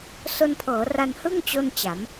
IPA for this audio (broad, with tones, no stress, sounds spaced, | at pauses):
s o˧ n pʰ ɤː˩˦ r a˧ n h ɯ˥˩ ŋ t͡ɕ o˥˩ n t͡ɕ a˩˦ m